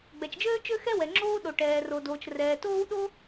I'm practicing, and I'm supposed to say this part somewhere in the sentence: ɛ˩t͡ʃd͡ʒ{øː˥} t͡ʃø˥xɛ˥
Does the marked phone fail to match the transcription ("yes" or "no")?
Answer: no